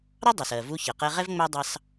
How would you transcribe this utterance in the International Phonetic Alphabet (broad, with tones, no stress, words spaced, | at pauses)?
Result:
ɾɑ˥dˤʊ˩sɜ˩ vu˧ çɜ˩qɛ˧ʁɛ˥v ŋ͡mæ˥ dˤɑ˧s